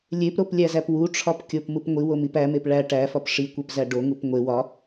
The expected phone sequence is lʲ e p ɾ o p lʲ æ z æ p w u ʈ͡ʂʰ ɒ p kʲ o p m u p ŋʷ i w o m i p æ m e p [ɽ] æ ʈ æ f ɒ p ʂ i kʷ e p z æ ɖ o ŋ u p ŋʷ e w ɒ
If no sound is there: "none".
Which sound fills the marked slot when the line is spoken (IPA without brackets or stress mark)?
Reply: ɭ